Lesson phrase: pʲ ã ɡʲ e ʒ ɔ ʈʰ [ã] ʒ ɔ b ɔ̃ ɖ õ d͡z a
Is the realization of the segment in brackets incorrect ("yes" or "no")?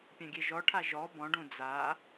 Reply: yes